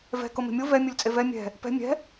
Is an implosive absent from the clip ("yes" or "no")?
yes